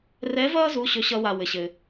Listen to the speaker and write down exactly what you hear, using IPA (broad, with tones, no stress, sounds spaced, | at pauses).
r ɛ˧˥ v ʌː˥ z u˩˧˩ ɕ ɵ˥ ɕ ʌ˥ w a˧ w ɘ˩ ɕ ɘ˩